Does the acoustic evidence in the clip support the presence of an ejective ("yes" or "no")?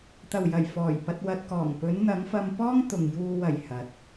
no